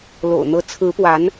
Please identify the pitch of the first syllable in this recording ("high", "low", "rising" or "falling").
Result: low